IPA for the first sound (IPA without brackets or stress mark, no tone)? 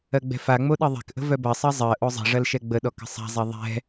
ɜ